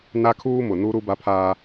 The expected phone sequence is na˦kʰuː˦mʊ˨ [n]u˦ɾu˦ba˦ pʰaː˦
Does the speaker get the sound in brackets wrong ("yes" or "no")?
no